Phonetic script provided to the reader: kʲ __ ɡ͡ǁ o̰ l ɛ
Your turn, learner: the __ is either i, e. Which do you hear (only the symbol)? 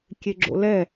e